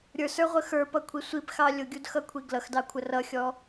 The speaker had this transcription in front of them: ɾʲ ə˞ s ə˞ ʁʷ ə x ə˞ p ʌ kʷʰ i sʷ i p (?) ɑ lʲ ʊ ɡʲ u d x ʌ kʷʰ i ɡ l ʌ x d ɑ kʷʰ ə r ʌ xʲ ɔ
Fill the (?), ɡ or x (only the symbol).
x